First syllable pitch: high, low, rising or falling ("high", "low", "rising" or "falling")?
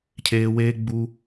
high